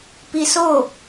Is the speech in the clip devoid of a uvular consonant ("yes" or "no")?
yes